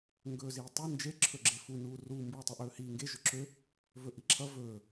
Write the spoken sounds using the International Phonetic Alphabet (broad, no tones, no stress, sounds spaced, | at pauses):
ŋ ɡ ɵː z iː tˤ u n d͡ʒ e ǁʰ ɵ ɡ͡ǁ e f u n uː r u m b uː tˤ ʌ ʔ ɵː h iː ŋ ɡ e ʒ ɵ ǁʰ ø | v ɵ ʔ i ǁʰ ʌ v ɵː